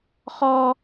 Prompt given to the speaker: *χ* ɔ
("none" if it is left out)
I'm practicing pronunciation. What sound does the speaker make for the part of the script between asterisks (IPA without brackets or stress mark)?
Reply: χ